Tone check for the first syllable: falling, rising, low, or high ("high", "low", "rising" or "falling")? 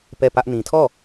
falling